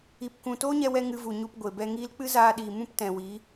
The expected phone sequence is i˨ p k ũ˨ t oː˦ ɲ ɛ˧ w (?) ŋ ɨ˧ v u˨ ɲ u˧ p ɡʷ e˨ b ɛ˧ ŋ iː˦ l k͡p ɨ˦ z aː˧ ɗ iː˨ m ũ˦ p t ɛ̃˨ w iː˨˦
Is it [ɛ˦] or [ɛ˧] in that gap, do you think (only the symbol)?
ɛ˧